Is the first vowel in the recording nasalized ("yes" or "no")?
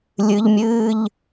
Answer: no